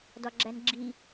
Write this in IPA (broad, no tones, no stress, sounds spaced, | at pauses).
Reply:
d ɒ ɡ͡ǁ æ n ɡ͡ǁ i